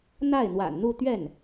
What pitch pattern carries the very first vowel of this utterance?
falling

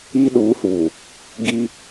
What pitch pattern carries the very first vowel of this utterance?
high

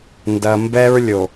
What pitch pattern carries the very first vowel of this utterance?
low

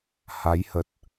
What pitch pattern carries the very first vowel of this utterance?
rising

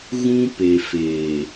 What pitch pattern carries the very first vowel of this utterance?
high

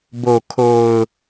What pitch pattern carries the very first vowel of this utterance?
low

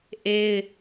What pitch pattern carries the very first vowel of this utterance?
high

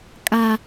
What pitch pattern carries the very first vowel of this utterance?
low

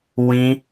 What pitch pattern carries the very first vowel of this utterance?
high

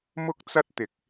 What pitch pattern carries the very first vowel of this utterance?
high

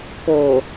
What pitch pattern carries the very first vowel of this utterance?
low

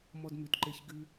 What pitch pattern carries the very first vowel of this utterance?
high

